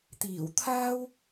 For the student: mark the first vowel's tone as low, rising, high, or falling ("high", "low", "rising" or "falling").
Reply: low